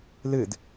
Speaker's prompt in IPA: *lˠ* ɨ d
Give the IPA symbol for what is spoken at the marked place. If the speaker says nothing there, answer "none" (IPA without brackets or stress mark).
l